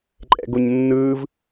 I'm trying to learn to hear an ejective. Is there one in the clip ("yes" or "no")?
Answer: yes